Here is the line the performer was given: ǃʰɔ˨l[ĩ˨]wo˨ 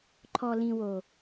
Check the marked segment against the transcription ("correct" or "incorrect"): correct